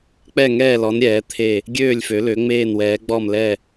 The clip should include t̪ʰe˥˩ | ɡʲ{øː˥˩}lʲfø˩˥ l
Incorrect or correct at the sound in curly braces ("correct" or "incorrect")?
correct